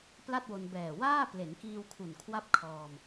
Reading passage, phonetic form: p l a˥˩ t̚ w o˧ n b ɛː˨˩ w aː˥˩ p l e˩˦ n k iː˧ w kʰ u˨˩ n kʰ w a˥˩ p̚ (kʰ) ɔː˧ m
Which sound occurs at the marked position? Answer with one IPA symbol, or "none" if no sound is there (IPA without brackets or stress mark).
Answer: kʰ